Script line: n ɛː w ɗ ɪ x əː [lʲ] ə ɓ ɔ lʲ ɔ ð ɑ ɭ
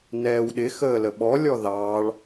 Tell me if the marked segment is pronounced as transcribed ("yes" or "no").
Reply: no